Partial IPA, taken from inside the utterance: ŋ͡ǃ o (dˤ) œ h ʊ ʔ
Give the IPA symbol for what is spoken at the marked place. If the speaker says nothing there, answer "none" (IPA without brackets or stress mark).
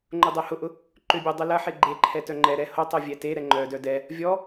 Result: dˤ